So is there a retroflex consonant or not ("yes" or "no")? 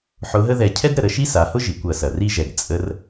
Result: no